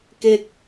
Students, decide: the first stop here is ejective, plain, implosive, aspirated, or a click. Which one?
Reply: plain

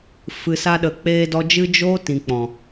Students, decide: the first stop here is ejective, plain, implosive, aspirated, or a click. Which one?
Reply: implosive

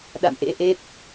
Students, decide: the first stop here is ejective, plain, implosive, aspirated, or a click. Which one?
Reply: implosive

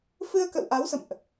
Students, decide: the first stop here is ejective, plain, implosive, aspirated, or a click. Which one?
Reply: plain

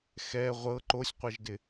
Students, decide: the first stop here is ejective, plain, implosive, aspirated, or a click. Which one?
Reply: click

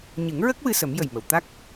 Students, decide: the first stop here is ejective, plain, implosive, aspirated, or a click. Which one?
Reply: plain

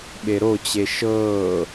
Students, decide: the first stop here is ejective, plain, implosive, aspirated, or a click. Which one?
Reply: implosive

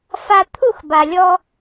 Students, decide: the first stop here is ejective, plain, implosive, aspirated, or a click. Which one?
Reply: aspirated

